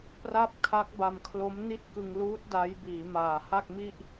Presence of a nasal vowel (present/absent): absent